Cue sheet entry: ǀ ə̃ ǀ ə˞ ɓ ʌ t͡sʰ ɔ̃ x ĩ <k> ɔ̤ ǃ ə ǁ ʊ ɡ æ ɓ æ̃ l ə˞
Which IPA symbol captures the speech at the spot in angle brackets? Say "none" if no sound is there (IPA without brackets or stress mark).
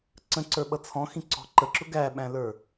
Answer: ǀ